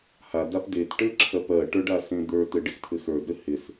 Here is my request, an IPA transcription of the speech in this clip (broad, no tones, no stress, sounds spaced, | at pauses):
h a d a p d e t ʈ ɘ ǁʰ ɜ p ɜ ʈ ə˞ ɖ a s ẽ d̪ ə˞ t ɘ ɖ ɪ x tʰ ɘ x ə˞ d ɾ ɘ h ɪ s